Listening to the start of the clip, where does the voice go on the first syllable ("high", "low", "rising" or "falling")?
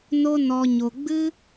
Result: high